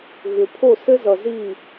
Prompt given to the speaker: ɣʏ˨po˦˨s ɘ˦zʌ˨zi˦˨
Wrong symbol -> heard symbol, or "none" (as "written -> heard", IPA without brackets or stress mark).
p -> pʰ